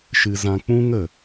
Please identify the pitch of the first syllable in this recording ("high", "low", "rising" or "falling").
low